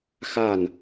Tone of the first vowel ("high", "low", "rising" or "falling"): falling